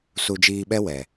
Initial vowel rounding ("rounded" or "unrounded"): rounded